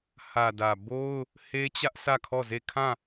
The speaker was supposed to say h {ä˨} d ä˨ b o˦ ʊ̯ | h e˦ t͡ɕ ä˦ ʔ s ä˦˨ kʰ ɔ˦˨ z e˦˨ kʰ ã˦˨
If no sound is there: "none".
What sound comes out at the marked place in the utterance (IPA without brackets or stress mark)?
ä˨